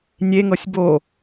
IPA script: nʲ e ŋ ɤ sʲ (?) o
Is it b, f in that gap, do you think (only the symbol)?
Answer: b